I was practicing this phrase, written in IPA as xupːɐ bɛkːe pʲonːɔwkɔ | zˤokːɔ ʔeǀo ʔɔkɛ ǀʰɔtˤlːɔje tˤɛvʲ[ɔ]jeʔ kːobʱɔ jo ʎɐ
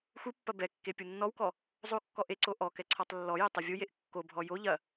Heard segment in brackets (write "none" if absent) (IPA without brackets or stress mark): o